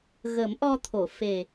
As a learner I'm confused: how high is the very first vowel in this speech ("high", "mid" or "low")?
mid